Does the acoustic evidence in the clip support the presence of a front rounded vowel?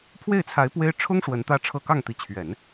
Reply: no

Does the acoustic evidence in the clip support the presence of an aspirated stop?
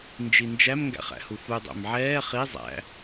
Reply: no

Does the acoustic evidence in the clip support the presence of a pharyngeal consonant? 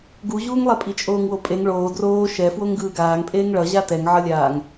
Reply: yes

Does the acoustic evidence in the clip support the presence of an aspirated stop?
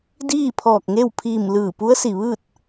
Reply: yes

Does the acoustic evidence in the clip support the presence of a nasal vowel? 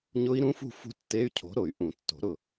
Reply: yes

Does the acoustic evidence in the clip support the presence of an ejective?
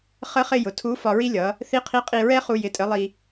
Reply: yes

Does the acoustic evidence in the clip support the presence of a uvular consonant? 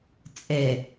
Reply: no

